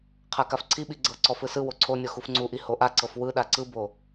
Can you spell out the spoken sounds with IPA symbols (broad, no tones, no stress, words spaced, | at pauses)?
qʰakafǀʰiɓi ɡ͡ǀɤǀɔ fɯsɯwo ǀʰonʲɔ xufŋ͡ǀuʔi hoʔaǀɤf wɯɗa ǀɯbo